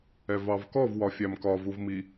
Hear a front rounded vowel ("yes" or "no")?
no